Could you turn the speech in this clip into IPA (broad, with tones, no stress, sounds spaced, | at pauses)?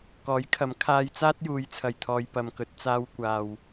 k ɔː˨˥ j kʰ ɐ˨˥ m kʰ aː˧ j t͡s aː˥ t̚ j uː˨˧ j t͡sʰ ɐ˧ j t̪ʰ ɔː˧ j p ɐ˨ m k ɵ˨˥ t̚ t͡s aː˧ w kʷ aː˨ w